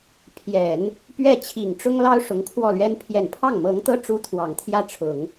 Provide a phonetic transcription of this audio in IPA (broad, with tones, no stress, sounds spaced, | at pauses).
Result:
pʰ j ɛ˨˩˦ n | p ɥ ɛ˥˩ t͡ɕʰ i˨˩ ŋ ʈ͡ʂ ʊ˥ ŋ l ɑ˥ ʊ̯ ʂ ʊ˧˥ ŋ kʰ w ɔ˥˩ l ɥ ɛ˥ n pʰ j ɛ˨˩ n pʰ ɑ˥˩ ŋ m ɤ˧˥ ŋ t̪ ɤ˥ ʈ͡ʂ u˥ t̪ʰ w ɑ˨˩ ŋ t̪ʰ j ä˥˩ ʈ͡ʂʰ ʊ˨˩˦ ŋ